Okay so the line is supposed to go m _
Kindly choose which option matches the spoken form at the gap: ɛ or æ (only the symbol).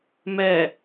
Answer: ɛ